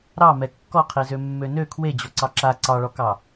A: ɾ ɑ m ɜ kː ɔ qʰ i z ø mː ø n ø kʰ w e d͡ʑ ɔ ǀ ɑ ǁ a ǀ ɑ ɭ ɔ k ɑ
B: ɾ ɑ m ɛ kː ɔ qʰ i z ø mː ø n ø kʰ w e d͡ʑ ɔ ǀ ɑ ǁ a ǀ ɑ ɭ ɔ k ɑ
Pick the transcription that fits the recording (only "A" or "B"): B